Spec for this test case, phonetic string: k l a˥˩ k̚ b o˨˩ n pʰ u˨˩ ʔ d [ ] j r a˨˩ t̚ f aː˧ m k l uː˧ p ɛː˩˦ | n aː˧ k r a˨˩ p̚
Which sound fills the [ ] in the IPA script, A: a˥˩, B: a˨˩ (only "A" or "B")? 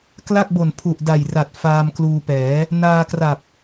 B